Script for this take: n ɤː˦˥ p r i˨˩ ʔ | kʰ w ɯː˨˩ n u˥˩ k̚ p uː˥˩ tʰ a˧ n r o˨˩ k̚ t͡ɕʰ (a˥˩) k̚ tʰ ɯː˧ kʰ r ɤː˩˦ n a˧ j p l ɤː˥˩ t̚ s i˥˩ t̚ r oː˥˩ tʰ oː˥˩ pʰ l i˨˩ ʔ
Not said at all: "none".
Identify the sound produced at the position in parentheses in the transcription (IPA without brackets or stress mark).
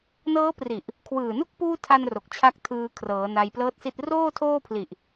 a˦˥